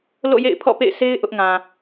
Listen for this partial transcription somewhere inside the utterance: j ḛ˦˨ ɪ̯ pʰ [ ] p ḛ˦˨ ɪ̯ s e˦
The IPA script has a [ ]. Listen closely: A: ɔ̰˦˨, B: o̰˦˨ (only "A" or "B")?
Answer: A